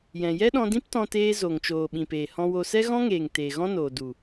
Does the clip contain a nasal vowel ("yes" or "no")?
yes